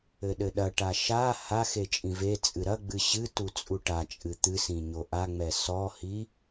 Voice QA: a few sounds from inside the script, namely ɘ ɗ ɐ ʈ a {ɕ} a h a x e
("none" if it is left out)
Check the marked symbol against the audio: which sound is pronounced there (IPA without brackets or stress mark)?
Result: ʃ